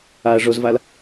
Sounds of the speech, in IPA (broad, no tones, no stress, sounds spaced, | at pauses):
a ɐ̯ ʐ o z v a l